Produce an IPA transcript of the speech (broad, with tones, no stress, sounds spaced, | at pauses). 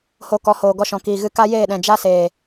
h o˧ k ɔ˨˦ h oː˨ ɡ ɔ˧ ʃ ɔ̃˨ k iː˨ ɣ ɨ˧ k a˦ j eː˦˨ ɗ ɛ̃˨ d͡ʒ a˦ s eː˨